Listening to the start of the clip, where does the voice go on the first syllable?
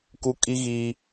high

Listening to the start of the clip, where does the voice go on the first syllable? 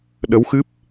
rising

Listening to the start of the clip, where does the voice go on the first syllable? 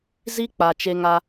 high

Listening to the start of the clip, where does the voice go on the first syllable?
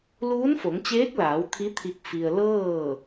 rising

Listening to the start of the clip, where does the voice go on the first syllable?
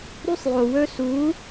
high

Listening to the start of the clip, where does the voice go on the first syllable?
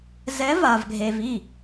rising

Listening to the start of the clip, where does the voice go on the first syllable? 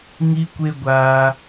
high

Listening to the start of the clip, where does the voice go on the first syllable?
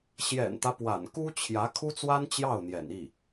low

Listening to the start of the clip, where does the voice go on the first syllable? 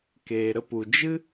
low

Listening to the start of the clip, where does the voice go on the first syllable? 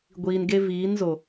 low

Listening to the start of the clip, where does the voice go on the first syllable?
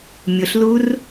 low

